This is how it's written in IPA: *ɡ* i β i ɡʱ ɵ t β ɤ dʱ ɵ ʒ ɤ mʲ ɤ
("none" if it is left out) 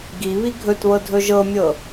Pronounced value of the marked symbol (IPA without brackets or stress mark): ɡ